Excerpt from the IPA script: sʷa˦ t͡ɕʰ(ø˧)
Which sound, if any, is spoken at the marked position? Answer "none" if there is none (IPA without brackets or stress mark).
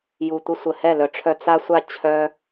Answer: œ˧